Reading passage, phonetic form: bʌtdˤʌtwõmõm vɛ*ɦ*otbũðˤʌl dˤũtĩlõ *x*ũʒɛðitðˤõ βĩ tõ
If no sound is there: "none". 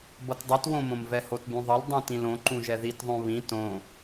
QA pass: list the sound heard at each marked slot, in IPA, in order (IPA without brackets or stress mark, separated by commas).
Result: h, ǃ